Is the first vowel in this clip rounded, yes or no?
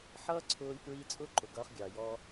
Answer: no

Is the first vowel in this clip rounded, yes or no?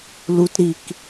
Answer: yes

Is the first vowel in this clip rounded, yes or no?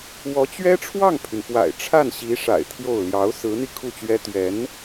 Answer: yes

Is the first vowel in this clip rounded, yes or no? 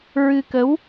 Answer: no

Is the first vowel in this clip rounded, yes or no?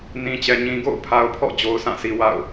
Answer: no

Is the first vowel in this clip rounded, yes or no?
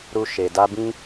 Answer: yes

